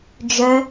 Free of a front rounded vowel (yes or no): no